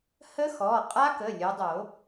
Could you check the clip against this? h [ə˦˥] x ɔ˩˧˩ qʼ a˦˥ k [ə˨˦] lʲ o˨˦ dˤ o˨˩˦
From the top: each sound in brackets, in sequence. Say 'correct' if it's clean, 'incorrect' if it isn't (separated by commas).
correct, incorrect